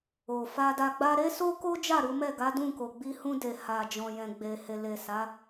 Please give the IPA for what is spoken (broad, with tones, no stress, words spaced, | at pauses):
o˨fa˧da˧ɡ͡ba˦ ɾe˦so˦ko˦d͡ʒa˦˨ ɾu˨˦ mɛ˦˨ɡa˨˦dũ˦˨ ko˨ɡ͡bi˧ hũ˧de˨ha˨d͡ʒɔ̃˨ jɛ̃˨ɡ͡be˨he˨ le˨ sa˨˦